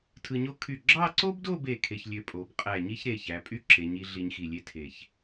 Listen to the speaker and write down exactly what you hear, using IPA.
tʰ ɯ˧ ɲ o˥ kʰ y˧˩ ɡ͡ǁ ɑ˥˧ ǀ o˥ b d o˥˧ b e˧˩ kʰ e˧ ç lʲ ø˧ pʼ o˩˧ b qʼ æ˧˩ ɲ i˥ ç ɾ e˧˩ ç æ˩˧ pʼ y˥ ǁ e˩˧ ɲ i˩˧ ɮ i˧ ɲ x i˧˩ lʲ e˥ tʰ e˧˩ ç

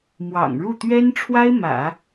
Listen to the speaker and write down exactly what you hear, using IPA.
m w ɑ̰˨˩ ŋ ɻ u˥˩ t̪ ɥ ɛ˥ n ʈ͡ʂʰ w a˥ ɪ̯ m ä̰˨˩˦

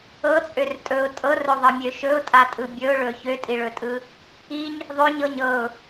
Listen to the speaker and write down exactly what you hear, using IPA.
ɤ t͡sʼ ø r tʼ ɵ ʊ̯ tʼ ɤ r ɵ ðˤ ɤ mʲ ø ʃ ɵ ʊ̯ tʼ a tʼ ɯ bʲ ɵ ʊ̯ ɭ ɵ ç ø tʼ i ɭ ɵ tʼ ɯ | i ɲ | ðˤ ø ɲ ɤ ɲ ɤ ʊ̯

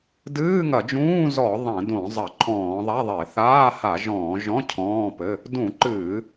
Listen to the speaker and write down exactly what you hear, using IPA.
d ɨː˧˥˧ ŋ ɐ˧˩˧ d͡ʒ ũː˧˥˧ z ɔ˧˩˧ ðˤ ɛ̃˧˩˧ d õ˧˩˧ zˤ ɐ˧˩˧ ǃʰ ɔ̃ː˧˩˧ ðˤ a˧˥˧ ðˤ e˧˩˧ θ aː˧˥˧ h a˧˩˧ ʒ ɔ̃ː˧˩˧ ʒ ɔ̃˧˥˧ cʰ ɔ̃ː˧˥˧ p ɘ˧˥˧ | d ũ˧˩˧ ǃ ɨː˧˩˧

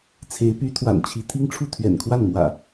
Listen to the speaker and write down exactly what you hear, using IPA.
t͡sʰ e˨˦ ɪ̯ p y˨˦ t̪ʰ w a̰˨˩ n t͡ɕʰ i˨˦ t̪ʰ i˦ ŋ ʈ͡ʂʰ u˥˨ t̪ʰ ɥ ɛ̰˨˩ n kʰ w a˥˨ n m w ä̰˨˩

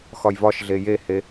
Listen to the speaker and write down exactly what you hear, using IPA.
x ɒ j v ɒ ʃ ɮ e j e h e

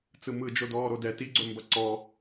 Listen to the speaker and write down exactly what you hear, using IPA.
t͡s ɯ m ɯ d͡ʒ o d ɔː ɾ o d ɛ t i ɡ͡ǀ ɵ m b ɐ ǀ ɔ

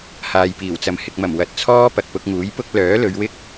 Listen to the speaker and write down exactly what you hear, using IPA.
h aː˨ j p iː˨˩ w t͡s ɐ˨ m h ɪ˨ k̚ m ɐ˨˩ m w ɐ˨ t̚ t͡sʰ ɔː˥ p ɐ˨ k̚ p ʊ˧ k̚ ŋ uː˨˥ j p ʊ˥ k̚ l œː˨˥ l ɵ˨˧ ɥ w ɪ˥ k̚

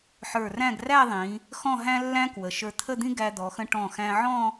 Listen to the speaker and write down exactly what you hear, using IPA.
ħ ə˞˧˩ r æ̃˥˧ ɡ r æ˥˧ ðˤ ĩ˩˧ | x ɔ̃˥˧ ɦ æ̃˥ lː æ̃˥ k w ə˩˧ ʃ ə˞˧ t̪ʰ ə˥˧ d̪ ĩ˥ ɡ æ˧ d̪ ɔ˩˧ x ə̃˧ ʈ ɔ̃˧˩ x æ̃˧ ʕ ɔ̃˥˧

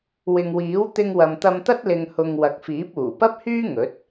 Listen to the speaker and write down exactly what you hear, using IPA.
w ɪ˨ ŋ w iː˨˥ w t̪ ɪ˧ ŋ w ɐ˨ m t̪ ɐ˧ m t̪ ɐ˥ t̚ l ɪ˧ ŋ h ʊ˧ ŋ w ɐ˨˥ k̚ f iː˨˥ p̚ uː˨˩ p ɐ˥ p̚ h yː˥ ŋ ɵ˨˥ t̚

